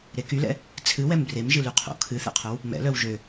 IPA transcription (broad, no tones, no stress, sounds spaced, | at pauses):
ɾ e k y l ɛ̰ | t͡sʰ ɨ w ɛ m b r e m ʒ ɨ l y qʰ o̰ kʰ ɨ θ ɛ̰ qʰ œ w | m ɛ̰ l œ w ʒ ø